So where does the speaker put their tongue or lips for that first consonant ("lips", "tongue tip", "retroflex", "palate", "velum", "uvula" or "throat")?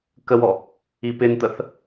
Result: velum